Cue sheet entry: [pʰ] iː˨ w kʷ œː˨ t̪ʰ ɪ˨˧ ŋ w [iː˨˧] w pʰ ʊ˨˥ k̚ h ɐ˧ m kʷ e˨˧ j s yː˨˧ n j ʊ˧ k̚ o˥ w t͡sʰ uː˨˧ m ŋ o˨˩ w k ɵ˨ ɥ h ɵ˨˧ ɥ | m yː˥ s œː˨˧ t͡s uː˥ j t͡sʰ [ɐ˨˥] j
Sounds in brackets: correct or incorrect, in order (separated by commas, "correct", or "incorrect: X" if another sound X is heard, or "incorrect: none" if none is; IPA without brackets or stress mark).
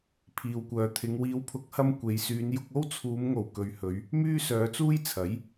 correct, correct, correct